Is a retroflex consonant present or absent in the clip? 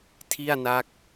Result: absent